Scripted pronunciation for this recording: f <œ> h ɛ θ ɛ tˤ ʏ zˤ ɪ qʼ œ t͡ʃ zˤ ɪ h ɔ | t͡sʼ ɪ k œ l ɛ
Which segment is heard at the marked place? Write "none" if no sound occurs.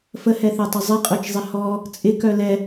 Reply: ə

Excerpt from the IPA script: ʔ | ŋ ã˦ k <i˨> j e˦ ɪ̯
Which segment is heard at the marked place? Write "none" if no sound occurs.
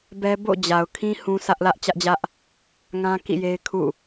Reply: ḭ˦˨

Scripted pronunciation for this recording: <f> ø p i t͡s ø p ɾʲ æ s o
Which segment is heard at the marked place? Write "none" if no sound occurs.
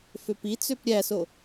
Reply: f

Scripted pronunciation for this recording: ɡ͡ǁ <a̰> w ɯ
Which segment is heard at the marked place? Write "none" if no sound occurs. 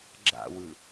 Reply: a̰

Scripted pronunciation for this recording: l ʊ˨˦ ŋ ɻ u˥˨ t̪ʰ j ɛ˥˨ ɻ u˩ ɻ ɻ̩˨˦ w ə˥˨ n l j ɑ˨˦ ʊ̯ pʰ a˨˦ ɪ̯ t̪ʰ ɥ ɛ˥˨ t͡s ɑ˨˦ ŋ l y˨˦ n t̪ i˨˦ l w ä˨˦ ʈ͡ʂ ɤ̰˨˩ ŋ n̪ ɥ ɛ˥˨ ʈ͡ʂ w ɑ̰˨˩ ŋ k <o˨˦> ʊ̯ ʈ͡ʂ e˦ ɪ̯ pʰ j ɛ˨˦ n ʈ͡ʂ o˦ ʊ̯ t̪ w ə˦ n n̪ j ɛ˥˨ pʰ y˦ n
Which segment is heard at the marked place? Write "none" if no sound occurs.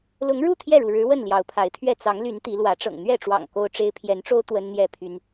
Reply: o˦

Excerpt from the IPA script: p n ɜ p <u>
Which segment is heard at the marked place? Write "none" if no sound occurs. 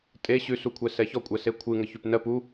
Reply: u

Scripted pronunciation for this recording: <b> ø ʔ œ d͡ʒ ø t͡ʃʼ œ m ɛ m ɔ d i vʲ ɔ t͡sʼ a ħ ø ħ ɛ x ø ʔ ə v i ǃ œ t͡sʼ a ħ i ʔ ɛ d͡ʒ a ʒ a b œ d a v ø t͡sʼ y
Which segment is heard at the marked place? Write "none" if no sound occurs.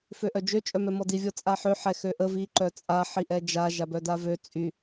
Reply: f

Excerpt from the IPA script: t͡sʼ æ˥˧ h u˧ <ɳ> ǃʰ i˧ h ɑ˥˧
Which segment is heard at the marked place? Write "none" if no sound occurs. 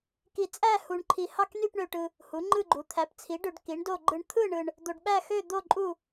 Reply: ɳ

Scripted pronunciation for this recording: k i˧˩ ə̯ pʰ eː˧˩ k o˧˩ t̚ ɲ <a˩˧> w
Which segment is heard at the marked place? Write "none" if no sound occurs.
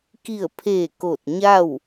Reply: a˥˨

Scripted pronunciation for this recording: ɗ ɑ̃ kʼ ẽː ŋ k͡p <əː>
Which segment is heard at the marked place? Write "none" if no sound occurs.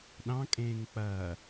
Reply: ɐː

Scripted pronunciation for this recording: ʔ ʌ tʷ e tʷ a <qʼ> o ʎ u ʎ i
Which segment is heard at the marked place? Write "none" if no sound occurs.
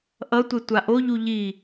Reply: ʔ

